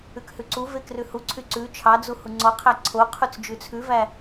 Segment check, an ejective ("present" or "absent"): absent